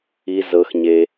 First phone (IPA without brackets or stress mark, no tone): i